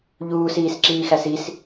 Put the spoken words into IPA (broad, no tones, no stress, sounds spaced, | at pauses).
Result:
ʎ uː s iː s ǁ iː x æ s i s